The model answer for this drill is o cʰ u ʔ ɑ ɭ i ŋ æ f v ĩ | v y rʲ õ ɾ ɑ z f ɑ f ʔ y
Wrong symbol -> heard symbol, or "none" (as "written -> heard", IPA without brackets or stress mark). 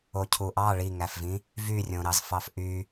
none